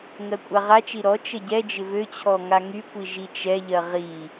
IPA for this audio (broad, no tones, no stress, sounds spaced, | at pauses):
ŋ ɜ kʷʼ a ʁ a t͡ʃ i ɾ ɔ t͡ʃ ə ɟ ɛ d͡ʒ ɪ v ø t͡ɕʰ ɔ ŋ a ŋ y kʷ i ʒ i t͡ʃ ɛ ʎ ɜ ʁ i